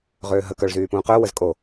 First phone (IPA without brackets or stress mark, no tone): ʁ